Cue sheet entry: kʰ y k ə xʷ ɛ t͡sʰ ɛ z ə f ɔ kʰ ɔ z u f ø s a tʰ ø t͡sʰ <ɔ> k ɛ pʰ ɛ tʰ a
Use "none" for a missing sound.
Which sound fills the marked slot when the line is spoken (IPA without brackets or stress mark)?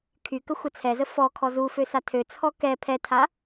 ɔ